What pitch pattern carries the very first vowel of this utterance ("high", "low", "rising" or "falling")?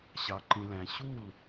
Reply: low